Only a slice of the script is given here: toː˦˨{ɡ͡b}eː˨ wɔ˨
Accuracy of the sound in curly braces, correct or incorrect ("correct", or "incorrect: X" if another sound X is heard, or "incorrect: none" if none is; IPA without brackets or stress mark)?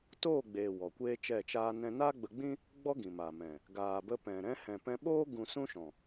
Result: correct